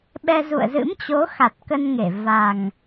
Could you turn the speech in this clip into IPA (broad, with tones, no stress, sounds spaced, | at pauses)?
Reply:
ɓ ɛ˧ z ṵ˧˨ ə̯ z ɨ̰˧˥ m t͡ɕ o˨˦ x a˨˩ t̚ k ə˧ n ŋ e˧˩ v a˨˩ ŋ